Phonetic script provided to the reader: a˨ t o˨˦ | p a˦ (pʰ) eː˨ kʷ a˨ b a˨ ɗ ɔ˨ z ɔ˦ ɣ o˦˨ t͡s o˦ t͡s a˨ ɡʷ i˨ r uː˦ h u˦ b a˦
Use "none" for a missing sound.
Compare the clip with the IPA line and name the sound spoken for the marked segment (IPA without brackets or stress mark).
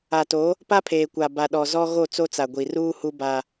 pʰ